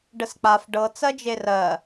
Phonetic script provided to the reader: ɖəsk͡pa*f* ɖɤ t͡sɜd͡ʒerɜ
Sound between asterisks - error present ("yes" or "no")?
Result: no